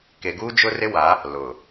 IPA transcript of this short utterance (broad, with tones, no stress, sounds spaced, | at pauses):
k e˨ ɡ uː˦ d͡ʒ ʊ˦ r ɪ˦ w a˨˦ | l ʊ˨